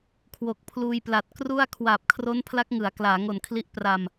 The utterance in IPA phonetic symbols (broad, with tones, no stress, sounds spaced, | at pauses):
kʰ w o˨˩ k̚ pʰ l uː˧ j p l a˨˩ t̚ k r u˥˩ a̯ kʰ w aː˨˩ p̚ kʰ r o˦˥ n pʰ l a˦˥ k̚ ŋ ɯ˩˦ a̯ k l aː˩˦ ŋ o˨˩ n kʰ l i˦˥ ʔ p r a˧ m